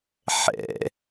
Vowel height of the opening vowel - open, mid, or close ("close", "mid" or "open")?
mid